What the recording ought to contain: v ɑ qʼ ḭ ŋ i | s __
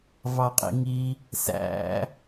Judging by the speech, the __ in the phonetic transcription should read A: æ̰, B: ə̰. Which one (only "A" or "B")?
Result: A